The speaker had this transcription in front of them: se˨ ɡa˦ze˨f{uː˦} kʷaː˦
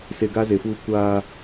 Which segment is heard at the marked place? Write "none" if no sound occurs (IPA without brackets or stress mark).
uː˦